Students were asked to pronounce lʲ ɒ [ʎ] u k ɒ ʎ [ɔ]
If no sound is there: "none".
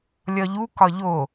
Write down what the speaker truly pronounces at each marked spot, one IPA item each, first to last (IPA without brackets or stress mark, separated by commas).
ʎ, o